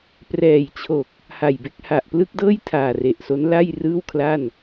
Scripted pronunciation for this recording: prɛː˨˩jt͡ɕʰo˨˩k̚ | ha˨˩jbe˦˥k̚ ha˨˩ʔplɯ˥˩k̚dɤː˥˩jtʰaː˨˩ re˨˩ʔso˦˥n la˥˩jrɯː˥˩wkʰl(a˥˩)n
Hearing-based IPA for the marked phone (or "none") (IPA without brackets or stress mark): a˥˩